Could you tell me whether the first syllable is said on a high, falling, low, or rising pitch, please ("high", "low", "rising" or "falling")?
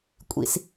low